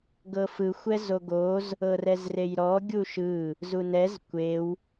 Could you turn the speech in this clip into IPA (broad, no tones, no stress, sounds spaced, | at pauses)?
ɡ ɤ f ɯ xʷ ɛ z o ɡ o z | ɤ r ɛ z r e j ɾ ɔ ɡʲ u ʃ ɯ | z u n ɛ z kʷ e w